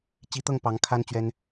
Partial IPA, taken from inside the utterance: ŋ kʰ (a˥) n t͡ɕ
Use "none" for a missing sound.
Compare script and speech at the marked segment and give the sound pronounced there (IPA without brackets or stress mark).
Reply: a˥